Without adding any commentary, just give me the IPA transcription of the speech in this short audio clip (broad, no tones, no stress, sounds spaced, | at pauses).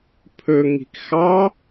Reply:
pʰ ɵ ŋ i̤ k x ɑ